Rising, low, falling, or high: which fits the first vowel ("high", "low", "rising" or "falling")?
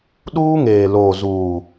high